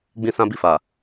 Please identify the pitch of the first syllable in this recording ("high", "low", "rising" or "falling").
high